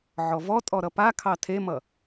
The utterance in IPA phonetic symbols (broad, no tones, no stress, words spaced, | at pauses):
ʕɔvɔ tʼɔɾʌpa kʰɑtʰemʌ